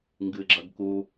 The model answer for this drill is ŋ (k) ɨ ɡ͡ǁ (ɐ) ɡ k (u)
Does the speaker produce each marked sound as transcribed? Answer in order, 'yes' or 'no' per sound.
no, yes, yes

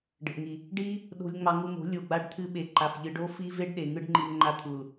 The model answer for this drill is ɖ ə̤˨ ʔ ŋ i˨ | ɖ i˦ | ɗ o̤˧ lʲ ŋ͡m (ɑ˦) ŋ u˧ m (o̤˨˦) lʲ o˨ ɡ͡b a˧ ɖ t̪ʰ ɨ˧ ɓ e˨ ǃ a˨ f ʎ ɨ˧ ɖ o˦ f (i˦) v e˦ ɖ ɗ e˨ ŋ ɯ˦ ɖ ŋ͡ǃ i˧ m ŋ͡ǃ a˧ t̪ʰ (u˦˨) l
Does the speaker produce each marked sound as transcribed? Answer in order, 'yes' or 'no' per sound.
no, yes, yes, no

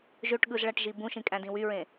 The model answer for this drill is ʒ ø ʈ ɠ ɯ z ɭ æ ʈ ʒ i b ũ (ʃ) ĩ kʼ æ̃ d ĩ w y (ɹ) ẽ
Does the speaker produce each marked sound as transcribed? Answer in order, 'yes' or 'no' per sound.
yes, yes

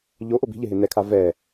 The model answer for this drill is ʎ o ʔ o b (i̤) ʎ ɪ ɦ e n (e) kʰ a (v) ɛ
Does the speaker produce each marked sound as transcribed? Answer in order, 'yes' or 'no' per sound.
yes, no, yes

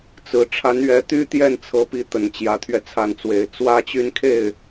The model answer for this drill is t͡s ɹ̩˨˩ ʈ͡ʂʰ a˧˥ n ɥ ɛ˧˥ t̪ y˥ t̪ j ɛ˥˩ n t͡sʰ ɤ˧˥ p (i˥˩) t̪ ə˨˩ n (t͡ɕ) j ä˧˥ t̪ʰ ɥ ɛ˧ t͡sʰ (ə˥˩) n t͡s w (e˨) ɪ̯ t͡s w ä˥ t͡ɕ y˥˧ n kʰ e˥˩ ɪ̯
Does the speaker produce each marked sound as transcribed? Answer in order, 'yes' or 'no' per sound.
no, yes, no, no

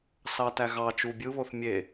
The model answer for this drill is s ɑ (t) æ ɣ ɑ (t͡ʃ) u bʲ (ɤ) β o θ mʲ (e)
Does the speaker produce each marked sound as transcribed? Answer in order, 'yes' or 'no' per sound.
yes, yes, no, yes

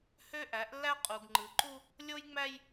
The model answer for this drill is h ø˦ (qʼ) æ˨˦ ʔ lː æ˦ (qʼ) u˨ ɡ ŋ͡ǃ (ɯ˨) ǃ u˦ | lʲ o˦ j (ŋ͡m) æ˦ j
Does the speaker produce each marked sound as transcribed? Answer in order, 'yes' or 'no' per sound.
no, yes, yes, yes

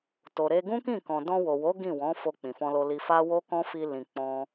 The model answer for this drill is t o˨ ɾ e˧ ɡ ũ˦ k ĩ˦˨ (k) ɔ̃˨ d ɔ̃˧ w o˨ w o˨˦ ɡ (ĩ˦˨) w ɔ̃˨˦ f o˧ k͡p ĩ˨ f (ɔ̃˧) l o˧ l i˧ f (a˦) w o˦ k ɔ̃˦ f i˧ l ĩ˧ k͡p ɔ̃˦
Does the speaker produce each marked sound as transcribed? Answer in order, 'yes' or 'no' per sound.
yes, yes, yes, yes

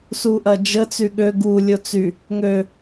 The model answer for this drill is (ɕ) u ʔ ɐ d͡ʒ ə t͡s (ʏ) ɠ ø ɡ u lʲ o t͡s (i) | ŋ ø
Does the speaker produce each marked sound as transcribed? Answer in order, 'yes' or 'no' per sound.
no, no, no

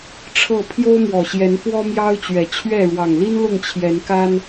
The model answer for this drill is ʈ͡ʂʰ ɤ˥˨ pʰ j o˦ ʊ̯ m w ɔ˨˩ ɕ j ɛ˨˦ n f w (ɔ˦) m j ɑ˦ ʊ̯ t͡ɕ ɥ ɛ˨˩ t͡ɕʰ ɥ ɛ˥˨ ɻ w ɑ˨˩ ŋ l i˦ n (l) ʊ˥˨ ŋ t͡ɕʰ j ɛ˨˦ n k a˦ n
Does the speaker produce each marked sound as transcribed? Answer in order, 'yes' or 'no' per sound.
yes, yes

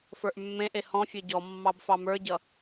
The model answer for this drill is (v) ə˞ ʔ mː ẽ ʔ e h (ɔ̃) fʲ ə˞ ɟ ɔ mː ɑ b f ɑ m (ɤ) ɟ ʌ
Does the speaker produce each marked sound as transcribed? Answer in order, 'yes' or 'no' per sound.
no, yes, no

